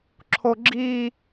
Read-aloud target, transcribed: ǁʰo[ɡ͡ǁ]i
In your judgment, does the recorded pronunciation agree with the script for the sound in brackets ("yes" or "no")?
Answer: yes